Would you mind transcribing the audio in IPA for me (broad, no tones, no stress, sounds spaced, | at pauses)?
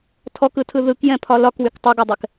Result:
tʰ ɔ k ɯ tʰ ɯ ð ɯ k j ɛ̃ pʰ ɒ l ɒ k w y k tˤ ʌ ɡ ɔ dˤ ɛ k